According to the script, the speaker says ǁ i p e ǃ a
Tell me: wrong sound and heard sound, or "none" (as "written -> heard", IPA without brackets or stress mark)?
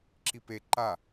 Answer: none